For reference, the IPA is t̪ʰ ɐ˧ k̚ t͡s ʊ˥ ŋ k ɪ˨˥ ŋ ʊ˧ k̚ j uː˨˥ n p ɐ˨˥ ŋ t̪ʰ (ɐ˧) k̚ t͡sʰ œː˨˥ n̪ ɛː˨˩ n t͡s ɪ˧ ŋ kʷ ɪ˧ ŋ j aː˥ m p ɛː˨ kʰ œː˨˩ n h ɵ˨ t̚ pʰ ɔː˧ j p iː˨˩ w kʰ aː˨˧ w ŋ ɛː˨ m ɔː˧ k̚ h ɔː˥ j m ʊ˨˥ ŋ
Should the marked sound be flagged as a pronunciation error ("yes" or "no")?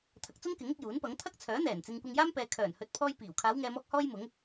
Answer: yes